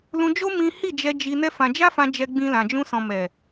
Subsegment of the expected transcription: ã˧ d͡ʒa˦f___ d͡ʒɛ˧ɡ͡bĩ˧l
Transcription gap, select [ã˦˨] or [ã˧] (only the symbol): ã˧